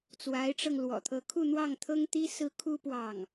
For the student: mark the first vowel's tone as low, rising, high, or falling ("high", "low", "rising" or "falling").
rising